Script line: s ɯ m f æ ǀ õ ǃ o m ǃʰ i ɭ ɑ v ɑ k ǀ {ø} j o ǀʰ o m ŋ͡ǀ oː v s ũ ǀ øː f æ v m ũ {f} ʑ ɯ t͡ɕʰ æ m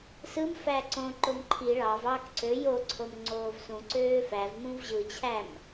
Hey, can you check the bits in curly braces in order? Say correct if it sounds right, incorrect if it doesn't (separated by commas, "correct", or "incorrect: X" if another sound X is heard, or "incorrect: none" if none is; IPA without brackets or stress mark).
correct, incorrect: v